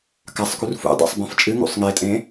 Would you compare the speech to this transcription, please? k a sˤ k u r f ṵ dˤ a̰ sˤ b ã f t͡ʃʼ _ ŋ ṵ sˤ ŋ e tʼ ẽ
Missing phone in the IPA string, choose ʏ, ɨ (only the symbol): ɨ